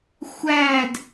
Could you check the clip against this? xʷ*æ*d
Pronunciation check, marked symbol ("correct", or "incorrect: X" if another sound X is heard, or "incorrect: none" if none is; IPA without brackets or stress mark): correct